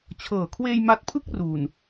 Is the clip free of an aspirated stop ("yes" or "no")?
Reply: no